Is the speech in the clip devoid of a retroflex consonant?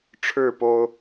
no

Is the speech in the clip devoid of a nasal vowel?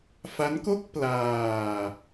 yes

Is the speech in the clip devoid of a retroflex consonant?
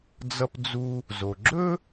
yes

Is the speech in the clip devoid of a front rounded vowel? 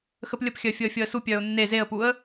no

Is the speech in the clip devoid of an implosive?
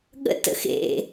no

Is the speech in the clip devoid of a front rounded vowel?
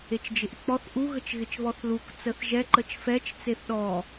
yes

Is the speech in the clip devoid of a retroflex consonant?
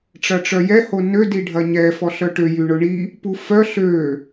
no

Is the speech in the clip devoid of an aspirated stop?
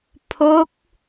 no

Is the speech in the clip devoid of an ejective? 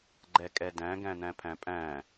no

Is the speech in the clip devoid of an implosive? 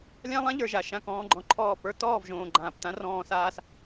yes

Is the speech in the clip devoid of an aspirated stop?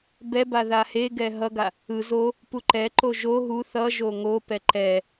yes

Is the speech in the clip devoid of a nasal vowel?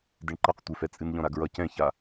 no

